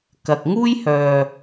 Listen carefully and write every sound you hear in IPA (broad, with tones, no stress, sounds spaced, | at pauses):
k ɐ˨ k̚ ŋ uː˥ j h œː˨